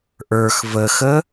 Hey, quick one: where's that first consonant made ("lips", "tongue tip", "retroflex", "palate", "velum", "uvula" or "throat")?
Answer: throat